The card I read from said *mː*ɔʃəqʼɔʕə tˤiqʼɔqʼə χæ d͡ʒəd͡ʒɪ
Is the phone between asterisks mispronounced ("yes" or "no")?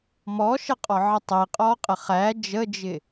yes